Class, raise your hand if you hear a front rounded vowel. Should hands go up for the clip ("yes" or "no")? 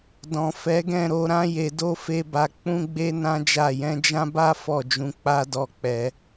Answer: no